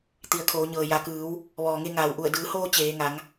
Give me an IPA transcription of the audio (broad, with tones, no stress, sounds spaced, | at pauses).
t̪ i˩˧ ə̯ kʰ oː˩˧ ɲ ɤː˩ j a˩˧ k ɯː˩˧ w | ʋ ɔː˩ ŋ e˧ ŋ aː˩ w ʔ u˧˩ ə̯ d ɯː˩˧ h oː˧ t͡ɕ eː˩˧ ŋ a˩˧ ŋ